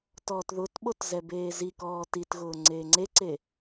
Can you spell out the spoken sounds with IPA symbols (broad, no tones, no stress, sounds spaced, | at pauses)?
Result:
t ɔː t ð ʊ t ɓ o t z ɛ b eː z i k ɔː t i t ɣ ʊː ŋ͡ǀ eː ŋ͡ǀ e ǀ e